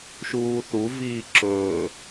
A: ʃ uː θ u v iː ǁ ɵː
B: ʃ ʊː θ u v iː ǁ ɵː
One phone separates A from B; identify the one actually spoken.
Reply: A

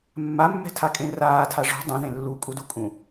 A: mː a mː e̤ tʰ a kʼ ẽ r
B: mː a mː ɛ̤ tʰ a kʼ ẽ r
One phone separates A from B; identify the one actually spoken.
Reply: B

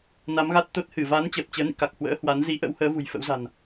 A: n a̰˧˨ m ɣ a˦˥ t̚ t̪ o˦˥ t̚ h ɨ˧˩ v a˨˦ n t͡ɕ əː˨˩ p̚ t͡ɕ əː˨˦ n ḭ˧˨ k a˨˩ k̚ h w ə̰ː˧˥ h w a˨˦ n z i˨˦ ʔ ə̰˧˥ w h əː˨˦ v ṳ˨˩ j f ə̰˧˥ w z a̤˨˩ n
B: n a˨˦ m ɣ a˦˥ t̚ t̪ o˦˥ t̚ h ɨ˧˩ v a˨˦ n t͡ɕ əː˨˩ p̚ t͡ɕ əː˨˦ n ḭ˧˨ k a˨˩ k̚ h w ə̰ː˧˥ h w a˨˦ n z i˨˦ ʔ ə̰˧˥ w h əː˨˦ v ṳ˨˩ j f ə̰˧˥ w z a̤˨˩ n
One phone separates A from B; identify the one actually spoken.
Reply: B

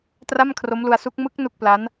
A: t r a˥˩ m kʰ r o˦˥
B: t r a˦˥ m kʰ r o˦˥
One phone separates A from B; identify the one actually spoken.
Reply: A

